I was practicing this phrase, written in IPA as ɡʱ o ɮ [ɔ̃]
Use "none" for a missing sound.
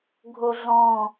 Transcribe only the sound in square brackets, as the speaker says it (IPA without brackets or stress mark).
ɔ̃